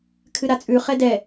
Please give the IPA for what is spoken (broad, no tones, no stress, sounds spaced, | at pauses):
kʰ ɨ ɾ a t͡sʼ ʉ χ ɛ d ɛ